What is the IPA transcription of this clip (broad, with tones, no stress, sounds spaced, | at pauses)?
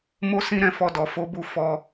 m o˦ s ĩ˦ ɾ ɛ̃˧ f ɔ˧ d ɔ˨ f o˨˦ b u˧ f ɔ˧